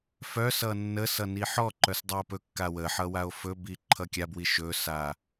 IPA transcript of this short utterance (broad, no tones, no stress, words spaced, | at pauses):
fœsʌ nːəsʌ niħɔǃœs dˤao̯pɵkːa wəħʌ wao̯fɵbi ǃʰʌkʲabwi ʃɵsa